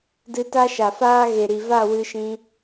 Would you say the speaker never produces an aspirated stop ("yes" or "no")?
yes